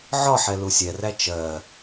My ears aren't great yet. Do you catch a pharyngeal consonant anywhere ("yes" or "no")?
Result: yes